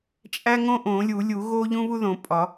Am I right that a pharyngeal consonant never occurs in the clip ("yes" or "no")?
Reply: yes